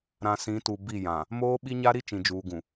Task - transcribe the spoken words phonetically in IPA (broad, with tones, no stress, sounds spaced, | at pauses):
ɾ ã˨ s ĩ˨˦ t u˨ b i˦˨ j ã˨ | m oː˦ ɓ i˦ ɲ a˦ ɾ i˦ t͡ʃ ĩ˨ d͡ʒ uː˨ ɡ ũ˨